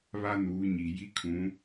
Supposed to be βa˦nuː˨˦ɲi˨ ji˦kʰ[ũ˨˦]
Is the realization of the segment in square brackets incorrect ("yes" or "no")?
no